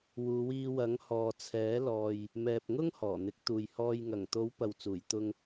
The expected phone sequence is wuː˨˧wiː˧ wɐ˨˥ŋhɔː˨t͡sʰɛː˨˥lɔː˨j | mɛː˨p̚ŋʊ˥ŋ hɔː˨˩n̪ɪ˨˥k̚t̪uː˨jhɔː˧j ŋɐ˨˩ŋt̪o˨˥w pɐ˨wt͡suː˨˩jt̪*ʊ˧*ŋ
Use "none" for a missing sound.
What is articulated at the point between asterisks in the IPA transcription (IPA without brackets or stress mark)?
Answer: ʊ˧